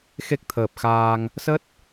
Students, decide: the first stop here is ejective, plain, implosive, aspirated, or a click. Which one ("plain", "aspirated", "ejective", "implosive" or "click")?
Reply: plain